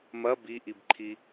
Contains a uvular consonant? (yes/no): no